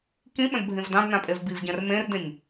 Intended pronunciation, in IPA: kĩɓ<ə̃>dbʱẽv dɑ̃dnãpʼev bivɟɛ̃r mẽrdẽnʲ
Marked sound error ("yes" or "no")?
no